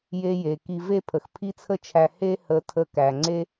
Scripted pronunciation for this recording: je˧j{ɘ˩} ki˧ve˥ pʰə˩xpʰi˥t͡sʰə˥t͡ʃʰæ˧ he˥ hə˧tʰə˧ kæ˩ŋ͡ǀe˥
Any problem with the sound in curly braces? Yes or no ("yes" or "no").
yes